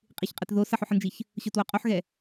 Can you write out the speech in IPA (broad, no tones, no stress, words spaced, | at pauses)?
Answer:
qʼiçqʼətðo sɐħoħənd͡ʒiç | ɕotwoqʼoħɣɛ